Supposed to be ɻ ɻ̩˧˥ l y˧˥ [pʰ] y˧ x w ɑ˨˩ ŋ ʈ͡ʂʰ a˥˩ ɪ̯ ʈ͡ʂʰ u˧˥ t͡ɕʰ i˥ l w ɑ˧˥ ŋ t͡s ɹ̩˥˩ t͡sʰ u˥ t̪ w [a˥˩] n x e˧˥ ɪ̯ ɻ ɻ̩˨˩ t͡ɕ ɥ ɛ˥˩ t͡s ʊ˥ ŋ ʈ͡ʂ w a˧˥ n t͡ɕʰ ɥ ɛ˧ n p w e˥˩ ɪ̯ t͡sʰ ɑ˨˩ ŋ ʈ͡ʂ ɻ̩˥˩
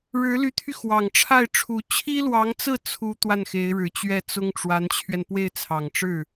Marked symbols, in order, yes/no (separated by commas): no, yes